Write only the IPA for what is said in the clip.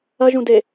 ɐ ʒ ũ d e

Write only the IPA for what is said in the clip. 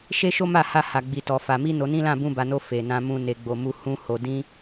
ʃ e˦ ʃ o˦ m a˦˨ h a˧ h a˧ ɡ͡b i˧ t ɔ˧ f a˧ m i˦ n o˧ n ĩ˦ l ã˦˨ b ũ˧ b a˨ n o˧ f e˨ n ã˧ m ũ˧ n e˨ ɡ͡b o˨ m u˧ h ũ˦ h o˧ d ĩ˦

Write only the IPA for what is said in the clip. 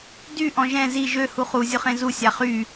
d y ʔ ɔ̃ ʒ ɛ̃ z i ʒ ø h u χ u zʲ ʊ χ ẽ z u sʲ a χ y

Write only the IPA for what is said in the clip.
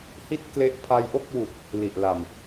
h i˥˩ t̚ k l e˦˥ ʔ pʰ a˧ j ʔ o˥˩ k̚ w u˨˩ k̚ | l i˨˩ ʔ l a˨˩ m

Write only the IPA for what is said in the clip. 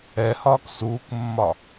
ɛ h ɒː k s uː k mː ɒ

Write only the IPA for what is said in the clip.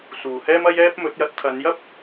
s uː˨ h ɛː˥ m ɐ˥ j ɛː˥ p̚ m ɵ˨˥ t̚ j ɐ˨˥ t̚ t̪ʰ ɐ˨˧ n j ɐ˥ p̚

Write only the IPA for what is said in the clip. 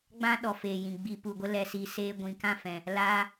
ɡ͡b ã˦ ɗ ɔ˨ f eː˨ j ĩ˨ ɡ͡b i˨ p u˨ ɡʷ ə˧ l ɛ˨ s i˨ s eː˧ ɡʷ ĩ˨ k ã˦˨ f ɛ̃˨ | l aː˧

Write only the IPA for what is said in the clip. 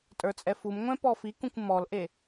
tʼ ə˞ t͡sʼ ɛ f u m ŋʷ ɛ̃ p ɔ f i k ũ kʷ m ɔ l ʔ e

